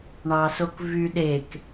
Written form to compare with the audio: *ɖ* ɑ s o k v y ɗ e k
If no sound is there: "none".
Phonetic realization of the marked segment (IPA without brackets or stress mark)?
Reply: ɳ